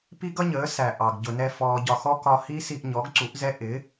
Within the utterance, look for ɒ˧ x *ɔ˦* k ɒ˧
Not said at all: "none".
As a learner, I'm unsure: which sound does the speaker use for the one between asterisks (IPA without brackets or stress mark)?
ɔ˦